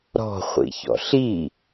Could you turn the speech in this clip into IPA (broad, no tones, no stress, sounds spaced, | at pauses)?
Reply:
ɾ ɔ̤ χʷ ḭ ç ɔ̰ ɬ i